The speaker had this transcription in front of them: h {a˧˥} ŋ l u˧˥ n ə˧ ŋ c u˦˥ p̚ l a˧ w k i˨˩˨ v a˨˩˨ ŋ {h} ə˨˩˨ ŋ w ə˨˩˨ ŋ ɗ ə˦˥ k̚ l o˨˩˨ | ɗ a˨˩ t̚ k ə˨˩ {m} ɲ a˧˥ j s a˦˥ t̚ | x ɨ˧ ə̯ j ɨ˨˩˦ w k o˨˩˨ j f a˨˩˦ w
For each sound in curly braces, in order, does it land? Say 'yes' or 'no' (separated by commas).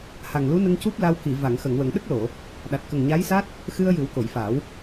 no, no, no